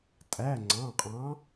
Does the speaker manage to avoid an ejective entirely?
no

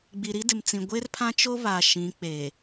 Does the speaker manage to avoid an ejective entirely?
yes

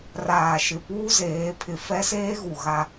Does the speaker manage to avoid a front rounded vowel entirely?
yes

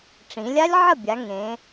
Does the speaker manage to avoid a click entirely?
yes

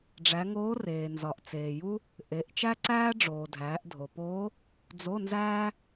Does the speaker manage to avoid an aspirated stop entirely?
yes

